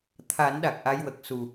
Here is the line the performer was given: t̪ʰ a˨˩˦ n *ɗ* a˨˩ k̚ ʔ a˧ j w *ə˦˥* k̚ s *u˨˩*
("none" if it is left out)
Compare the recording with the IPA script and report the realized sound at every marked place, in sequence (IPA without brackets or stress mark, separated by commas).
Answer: ɗ, ə˨˩, u˨˩